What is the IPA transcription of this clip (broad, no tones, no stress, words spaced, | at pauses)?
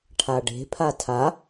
ʈʰaɖe̤ pʰatʰa